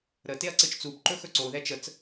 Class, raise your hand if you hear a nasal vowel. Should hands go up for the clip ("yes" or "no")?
no